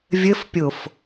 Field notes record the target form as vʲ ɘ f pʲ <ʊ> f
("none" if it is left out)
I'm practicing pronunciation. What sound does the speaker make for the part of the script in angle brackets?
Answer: ʊ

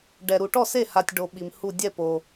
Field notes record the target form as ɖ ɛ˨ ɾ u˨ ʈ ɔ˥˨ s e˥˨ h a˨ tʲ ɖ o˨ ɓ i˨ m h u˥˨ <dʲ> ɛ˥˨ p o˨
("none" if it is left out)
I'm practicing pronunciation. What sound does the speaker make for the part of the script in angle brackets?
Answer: dʲ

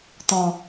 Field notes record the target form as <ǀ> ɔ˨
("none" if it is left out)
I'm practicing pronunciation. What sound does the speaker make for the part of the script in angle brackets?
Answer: t̪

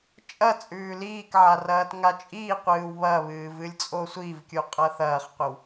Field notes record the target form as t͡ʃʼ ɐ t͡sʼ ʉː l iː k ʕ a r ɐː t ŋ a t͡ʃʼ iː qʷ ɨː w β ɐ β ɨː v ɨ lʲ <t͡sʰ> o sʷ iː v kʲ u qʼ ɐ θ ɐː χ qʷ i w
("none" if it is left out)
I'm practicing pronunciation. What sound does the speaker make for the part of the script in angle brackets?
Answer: t͡sʼ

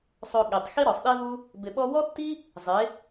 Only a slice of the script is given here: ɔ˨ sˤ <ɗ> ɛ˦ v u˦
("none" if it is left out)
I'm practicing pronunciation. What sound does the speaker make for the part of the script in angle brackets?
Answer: ɗ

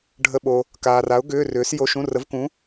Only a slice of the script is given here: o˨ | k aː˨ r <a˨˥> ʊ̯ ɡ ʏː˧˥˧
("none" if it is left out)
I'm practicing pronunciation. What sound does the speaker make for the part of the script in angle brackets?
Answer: a˨˥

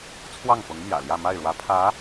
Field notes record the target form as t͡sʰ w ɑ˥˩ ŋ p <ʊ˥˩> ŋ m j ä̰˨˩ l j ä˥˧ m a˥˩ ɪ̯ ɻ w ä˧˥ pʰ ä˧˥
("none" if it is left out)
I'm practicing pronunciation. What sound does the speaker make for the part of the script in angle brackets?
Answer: ʊ˧˥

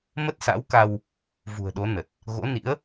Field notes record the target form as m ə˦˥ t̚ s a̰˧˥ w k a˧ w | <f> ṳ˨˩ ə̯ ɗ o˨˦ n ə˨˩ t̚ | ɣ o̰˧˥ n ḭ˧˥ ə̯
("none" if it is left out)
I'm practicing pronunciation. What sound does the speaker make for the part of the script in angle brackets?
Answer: v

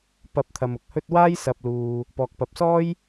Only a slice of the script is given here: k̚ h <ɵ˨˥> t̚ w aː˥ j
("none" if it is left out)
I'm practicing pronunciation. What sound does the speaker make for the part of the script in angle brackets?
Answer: ɵ˥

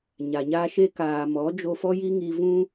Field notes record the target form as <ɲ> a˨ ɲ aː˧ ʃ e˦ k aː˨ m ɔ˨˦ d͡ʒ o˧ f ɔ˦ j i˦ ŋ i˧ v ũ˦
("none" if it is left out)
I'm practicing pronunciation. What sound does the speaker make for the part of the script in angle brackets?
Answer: ɲ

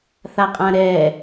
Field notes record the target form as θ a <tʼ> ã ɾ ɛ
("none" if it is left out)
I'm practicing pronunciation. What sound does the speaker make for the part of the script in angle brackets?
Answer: qʼ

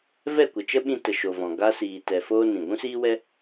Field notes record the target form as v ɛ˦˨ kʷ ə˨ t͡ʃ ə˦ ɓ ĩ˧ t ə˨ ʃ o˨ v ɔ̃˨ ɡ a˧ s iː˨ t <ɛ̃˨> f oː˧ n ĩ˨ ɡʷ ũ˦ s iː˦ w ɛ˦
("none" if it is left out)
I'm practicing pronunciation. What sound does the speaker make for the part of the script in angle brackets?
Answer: ɛ˨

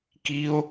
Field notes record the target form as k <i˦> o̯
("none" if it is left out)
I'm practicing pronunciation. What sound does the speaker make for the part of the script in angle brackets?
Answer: i˦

